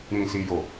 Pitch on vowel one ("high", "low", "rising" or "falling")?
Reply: low